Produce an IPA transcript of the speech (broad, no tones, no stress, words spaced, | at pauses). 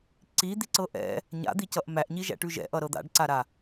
ǀi d̪iǀɤʔɛ̰ | ɲa̰d̪icʌʔ mæʔɲiʒæ̰ʈʉ ʒɛ̰ʔʌ ɾɤd̪a̰ɖǀaɾa